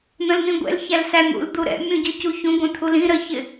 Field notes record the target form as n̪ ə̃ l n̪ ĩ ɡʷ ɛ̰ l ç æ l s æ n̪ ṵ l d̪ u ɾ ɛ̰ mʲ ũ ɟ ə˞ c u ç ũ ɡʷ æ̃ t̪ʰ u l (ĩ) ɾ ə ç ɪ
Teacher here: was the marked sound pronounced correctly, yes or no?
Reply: yes